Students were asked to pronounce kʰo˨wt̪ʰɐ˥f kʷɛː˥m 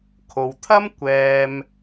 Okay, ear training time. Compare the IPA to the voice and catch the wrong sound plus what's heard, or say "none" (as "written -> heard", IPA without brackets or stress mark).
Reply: f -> m